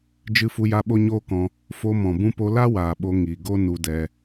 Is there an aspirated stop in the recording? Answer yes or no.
no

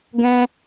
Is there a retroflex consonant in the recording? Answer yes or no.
no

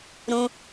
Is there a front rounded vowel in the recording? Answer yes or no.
no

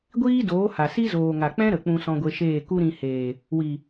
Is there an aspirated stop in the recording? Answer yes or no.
no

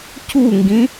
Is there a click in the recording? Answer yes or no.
no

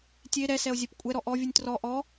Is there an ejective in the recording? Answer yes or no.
yes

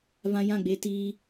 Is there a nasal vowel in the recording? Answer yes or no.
yes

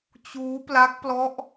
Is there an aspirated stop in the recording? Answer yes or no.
no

